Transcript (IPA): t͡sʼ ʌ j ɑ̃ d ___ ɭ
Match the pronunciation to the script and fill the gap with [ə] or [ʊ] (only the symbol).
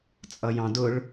ʊ